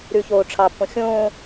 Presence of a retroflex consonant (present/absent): present